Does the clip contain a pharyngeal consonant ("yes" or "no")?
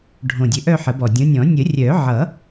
yes